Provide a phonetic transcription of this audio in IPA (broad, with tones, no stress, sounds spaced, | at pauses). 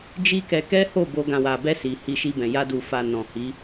d͡ʒ i˦ k ɛ˧ k ɛ˦ h o˦˨ b o˧ ɡ ã˨ w a˨ b ɛ˧ s i˨ h i˧ ʃ i˧ b ɛ̃˨ j a˧ d u˨ f a˨ n ɔ̃˨ h i˨˦